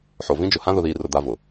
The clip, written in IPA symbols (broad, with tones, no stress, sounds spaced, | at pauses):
ħ o˨ v ĩ˦ d͡ʒ ʊ˨ h ã˦ ð ʊ˨ ð iː˨ r ʊ˨ d̪ a˦ v ʊ˨